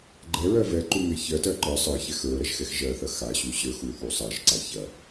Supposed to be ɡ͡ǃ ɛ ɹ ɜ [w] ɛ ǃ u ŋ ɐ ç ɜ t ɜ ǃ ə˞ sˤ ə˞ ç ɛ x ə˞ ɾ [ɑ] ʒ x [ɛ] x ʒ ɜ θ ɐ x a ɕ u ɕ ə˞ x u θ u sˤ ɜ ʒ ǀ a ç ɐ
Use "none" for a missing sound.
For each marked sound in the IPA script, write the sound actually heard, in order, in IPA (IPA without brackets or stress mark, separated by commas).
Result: v, ɐ, ɛ